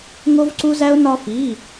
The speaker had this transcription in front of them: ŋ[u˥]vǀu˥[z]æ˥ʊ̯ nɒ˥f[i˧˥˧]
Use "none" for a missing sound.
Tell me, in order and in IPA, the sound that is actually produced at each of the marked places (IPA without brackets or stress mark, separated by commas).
o˥, z, i˧˥˧